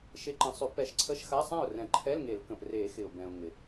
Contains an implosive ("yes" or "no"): no